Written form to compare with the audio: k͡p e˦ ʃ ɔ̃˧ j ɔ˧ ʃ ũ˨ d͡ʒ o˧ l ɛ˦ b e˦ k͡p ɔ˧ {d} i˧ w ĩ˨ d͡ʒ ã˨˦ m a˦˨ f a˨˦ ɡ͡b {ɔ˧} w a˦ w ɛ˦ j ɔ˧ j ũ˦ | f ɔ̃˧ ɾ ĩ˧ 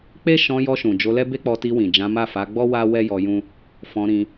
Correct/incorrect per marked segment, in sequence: incorrect, incorrect

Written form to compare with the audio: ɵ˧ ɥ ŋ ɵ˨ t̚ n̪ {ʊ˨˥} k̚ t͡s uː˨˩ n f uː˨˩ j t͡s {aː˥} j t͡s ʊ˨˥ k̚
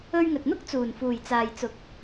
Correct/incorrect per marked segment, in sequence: incorrect, incorrect

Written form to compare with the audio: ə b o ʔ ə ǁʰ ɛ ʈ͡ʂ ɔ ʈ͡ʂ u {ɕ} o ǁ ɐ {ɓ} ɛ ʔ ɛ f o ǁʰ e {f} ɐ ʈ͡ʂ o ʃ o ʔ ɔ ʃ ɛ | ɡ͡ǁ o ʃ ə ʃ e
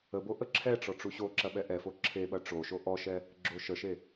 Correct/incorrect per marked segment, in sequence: correct, correct, incorrect

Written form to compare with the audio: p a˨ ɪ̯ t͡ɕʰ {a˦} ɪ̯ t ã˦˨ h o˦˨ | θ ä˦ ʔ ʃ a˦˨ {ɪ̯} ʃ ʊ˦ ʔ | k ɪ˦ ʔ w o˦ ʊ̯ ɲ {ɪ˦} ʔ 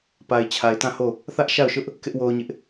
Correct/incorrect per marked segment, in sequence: incorrect, incorrect, correct

